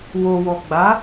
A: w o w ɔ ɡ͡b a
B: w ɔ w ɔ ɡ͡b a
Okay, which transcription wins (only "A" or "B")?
A